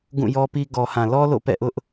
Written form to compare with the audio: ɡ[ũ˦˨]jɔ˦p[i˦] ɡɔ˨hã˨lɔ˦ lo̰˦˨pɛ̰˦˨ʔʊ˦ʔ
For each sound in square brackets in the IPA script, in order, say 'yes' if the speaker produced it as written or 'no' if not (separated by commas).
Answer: yes, yes